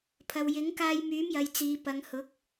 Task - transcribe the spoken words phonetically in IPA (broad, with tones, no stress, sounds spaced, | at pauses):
pʰ ɐ˨ w j ɪ˨˥ ŋ k aː˧ j m yː˨˥ m j ɐ˨ j t͡s iː˨˧ p ɐ˨˧ ŋ h ʊ˨˥ k̚